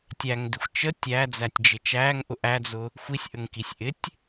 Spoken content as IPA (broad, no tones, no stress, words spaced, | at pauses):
tʲæŋdɪxʷ t͡ʃə tʲæd͡zætʲd͡ʒɪ t͡ʃæŋʔʊ ʔæd͡zʊ | xʷisʲʔəŋkisʲ ʔɪtʲ